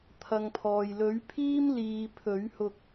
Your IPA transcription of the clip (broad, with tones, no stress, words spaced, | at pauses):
t̪ʰɐ˨ŋpʰɔː˨j lɵ˨˥ɥpʰiː˥m liː˨ pʰɵ˨˥ɥhʊ˧k̚